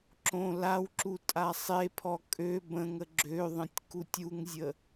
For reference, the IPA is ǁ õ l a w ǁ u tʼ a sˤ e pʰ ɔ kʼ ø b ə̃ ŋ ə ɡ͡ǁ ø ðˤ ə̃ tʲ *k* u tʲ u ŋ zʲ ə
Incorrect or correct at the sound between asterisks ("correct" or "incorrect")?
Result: correct